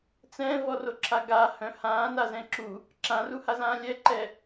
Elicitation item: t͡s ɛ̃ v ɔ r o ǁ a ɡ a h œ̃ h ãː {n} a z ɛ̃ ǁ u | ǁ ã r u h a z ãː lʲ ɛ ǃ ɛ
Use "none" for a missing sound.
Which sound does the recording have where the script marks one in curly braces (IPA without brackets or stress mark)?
n